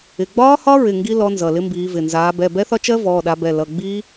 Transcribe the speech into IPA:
ɪ˩˧˩ɡ͡bɒː˦˥hɒ˦˥ɹɪ˩˧˩ ŋɡi˦˥ lɔ˨˦ nzʌ˩˧˩lɪ˦˥mbiː˨˦vɪ˩˧˩ nzaː˨˦ bɛ˩˧˩bɛ˦˥θɒ˦˥ t͡ʃɜ˦˥ vɔː˩˧˩ɗa˨˦bɛ˩˧˩ lʌ˩˧˩ɡ͡biː˦˥

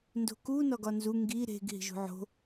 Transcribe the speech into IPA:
ndo̤ku nɒɡɒnzu ŋɡi ɾe̤ɡ ɦi̤ʒṳʕo̤

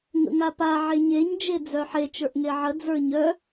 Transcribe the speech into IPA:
ŋə̰ŋapa ʕeɲeɲ d͡ʒed͡zœħe t͡ʃə˞ʔŋeʕə d͡zə˞ɲœ

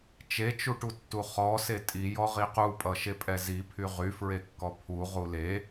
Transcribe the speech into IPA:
t͡ʃet͡ʃuʈutːu χɔse tʼijɔ ʁiqupʼʌ ʃepʼɛzipʰy ʁyfɹekːɔ pʰu ʁule

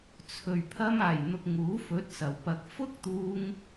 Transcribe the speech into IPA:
t͡sʰɵ˨˩ɥ pʰɐ˧maː˨˩jn̪ʊ˨k̚ ŋuː˨˥fɵ˨˥t̚sɐ˨˩w pɐ˨˥k̚ fʊ˥k̚t̪uː˧ŋ

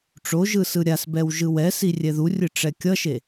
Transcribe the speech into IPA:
ʈ͡ʂoʒɯ sɯɾʲasbɛw ʒɯwɛsi rʲɛðurʲɯ ʈ͡ʂɛkʲʌʃe

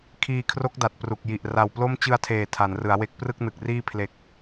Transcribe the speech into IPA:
kʰiː˧kʰro˦˥k̚da˨˩t̚ pru˨˩k̚ ji˨˩ʔ ra˨˩wplo˥˩m t͡ɕɯ˧a̯tʰeː˨˩ tʰa˩˦nrɯ˩˦a̯we˦˥k̚ prɯ˥˩k̚nɯ˨˩k̚riː˥˩ pʰle˨˩k̚

